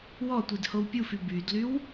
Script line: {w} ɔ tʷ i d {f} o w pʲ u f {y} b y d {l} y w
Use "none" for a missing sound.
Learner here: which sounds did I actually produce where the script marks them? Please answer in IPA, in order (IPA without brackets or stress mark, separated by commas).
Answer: w, h, y, l